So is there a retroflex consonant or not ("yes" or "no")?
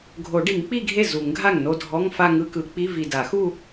yes